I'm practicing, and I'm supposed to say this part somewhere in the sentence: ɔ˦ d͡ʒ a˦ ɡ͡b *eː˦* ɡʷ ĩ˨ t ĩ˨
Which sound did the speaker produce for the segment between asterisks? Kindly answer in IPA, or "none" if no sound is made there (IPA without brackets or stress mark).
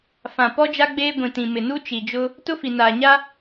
eː˦